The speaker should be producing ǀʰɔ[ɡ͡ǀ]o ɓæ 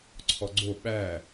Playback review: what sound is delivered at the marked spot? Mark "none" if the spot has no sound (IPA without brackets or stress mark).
ɡ͡ǀ